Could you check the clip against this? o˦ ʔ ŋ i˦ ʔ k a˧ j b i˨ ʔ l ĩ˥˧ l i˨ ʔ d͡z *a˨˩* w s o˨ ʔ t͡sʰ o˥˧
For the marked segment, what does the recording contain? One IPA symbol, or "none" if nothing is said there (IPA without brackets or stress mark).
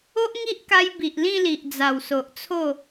a˨˩